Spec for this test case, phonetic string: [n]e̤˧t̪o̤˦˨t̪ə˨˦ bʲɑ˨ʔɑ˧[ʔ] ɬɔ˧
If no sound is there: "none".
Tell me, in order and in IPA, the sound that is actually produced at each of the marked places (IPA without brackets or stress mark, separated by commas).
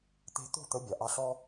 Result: t̪, none